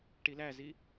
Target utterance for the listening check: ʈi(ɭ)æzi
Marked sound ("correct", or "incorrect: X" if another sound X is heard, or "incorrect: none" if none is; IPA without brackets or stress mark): incorrect: l